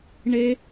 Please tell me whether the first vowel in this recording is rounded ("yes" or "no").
no